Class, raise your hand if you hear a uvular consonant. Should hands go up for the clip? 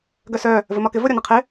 yes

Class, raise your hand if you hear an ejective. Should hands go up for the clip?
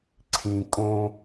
yes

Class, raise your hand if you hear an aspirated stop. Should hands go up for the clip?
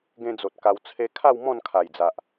yes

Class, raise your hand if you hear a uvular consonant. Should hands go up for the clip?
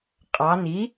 yes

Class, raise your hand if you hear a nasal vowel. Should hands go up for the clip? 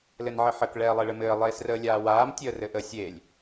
no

